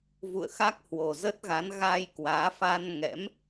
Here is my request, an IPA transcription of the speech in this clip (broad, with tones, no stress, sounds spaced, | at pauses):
v ṵ˧˨ ə̯ x a˦˥ k̚ h w o˨˩ z ə˦˥ t̚ ɣ a˨˦ n ɣ a˧ j k w aː˨˦ f a˧ n ŋ ɛ̰˧˥ m